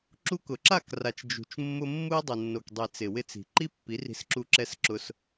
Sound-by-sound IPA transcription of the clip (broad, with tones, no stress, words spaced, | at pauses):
ǁu˧kʊ˨ǁa˦˨kra˨t͡ʃ d͡ʒṳ˨t͡ʃmːʊ˧ mːu˧i̯dˤɪ˨nːo˨kdˤi˨ t͡sɪ˨wɪ˧t͡si̤˨ ǃi˦pːi˨˦ri̤˧sǁu˧ ǁɛ˧sǁʊ˧s